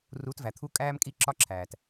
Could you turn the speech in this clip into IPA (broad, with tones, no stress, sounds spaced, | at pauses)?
r u˨˦ t v æ˨ t̪ʰ u˦ kʼ æː˦ m kʼ i˦ ǁ ɒ˦ ǁʰ æː˨ t